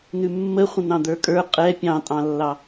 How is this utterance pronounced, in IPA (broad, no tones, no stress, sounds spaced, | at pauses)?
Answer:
n ʉ mː ə χʷ ə̃ n̪ ɑ̃ d̪ ə˞ kʼ ə˞ qʼ ɛ pʲ ɑ̃ tʼ ɑ̃ lː ɑ